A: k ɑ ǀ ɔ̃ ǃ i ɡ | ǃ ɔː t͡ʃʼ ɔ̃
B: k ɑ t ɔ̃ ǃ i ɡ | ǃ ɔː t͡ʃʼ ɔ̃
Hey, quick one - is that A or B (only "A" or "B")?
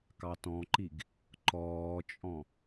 B